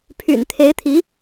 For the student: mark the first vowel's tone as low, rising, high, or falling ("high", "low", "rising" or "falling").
low